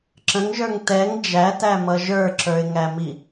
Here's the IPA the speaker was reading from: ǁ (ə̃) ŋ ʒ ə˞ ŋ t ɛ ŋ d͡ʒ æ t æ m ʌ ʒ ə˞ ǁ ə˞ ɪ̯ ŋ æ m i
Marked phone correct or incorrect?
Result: correct